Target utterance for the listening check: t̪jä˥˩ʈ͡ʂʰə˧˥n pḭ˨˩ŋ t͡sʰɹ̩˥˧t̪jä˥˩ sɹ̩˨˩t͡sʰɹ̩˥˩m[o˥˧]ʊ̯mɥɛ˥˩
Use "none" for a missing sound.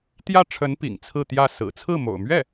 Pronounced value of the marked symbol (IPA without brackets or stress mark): o̰˨˩